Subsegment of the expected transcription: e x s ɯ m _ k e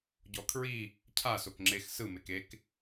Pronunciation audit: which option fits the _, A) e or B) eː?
A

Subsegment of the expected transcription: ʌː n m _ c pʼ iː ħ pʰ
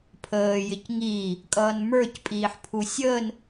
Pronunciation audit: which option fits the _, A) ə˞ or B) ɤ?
A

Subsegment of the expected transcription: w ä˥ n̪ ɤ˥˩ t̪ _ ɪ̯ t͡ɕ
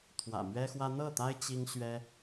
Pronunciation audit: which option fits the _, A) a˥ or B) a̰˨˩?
A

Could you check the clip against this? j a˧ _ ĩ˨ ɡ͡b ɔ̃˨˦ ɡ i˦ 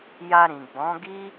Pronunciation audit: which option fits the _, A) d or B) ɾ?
B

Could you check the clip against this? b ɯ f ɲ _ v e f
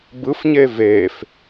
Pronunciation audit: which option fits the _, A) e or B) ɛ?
A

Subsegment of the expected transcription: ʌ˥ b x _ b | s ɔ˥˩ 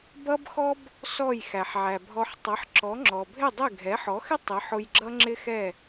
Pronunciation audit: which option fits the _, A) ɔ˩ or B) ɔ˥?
B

